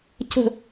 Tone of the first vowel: falling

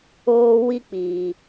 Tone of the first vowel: high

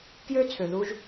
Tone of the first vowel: high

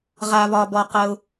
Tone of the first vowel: low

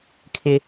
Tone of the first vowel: high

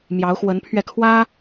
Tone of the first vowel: rising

